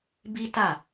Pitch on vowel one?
high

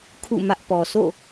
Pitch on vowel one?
falling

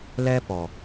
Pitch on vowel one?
high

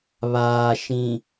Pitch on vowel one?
low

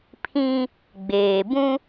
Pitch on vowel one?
high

